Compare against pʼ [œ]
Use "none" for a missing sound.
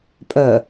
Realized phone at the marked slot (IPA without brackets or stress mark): œ